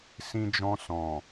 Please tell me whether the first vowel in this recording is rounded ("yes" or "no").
no